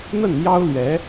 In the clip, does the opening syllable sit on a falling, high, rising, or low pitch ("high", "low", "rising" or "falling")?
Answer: falling